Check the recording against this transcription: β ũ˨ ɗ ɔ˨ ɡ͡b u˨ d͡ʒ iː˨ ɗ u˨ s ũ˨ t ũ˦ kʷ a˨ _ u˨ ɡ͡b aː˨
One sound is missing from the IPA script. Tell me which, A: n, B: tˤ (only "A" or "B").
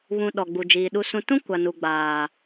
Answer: A